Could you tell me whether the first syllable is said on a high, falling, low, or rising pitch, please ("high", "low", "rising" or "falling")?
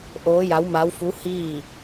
rising